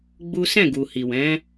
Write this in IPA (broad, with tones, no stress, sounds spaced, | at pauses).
ɡ͡b u˦ s ɛ̃˦˨ ɡ u˨ h i˨ w ɛ̃˨˦